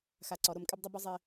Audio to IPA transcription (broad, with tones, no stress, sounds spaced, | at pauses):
x a˧ ǀ ɔ˨˦ ɾ o˧ m kʼ ɪ˦ b dˤ ʊ˦ b ʊ˦ zˤ ɪ˧